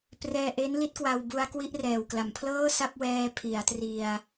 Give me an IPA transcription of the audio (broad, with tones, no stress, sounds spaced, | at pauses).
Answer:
p r ɛː˧ ʔ e˦˥ n l i˦˥ t̚ k w a˧ w b u˧ a̯ k w i˥˩ ʔ r ɛː˨˩ w k l a˨˩ m pʰ l ɤː˥˩ s a˥˩ p̚ w ɛː˧ pʰ i˩˦ a̯ t r i˧ a̯